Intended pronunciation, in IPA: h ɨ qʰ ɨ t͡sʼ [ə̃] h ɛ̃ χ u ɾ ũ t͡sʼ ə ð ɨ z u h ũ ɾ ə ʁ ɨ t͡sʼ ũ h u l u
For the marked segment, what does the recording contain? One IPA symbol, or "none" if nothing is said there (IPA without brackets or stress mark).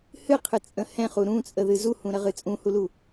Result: ə̃